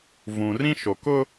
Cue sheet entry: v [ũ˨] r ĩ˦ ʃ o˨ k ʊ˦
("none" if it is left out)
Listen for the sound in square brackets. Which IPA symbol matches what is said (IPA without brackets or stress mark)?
ũ˨